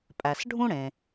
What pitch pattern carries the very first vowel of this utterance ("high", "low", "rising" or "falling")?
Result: low